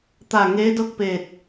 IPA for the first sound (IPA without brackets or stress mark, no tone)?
t̪